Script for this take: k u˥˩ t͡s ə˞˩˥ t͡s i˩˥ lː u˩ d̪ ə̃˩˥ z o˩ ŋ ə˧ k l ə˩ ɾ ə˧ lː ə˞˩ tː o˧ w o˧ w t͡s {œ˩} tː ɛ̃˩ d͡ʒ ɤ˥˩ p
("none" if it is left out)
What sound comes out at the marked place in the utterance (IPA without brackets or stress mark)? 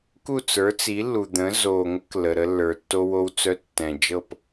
œ˧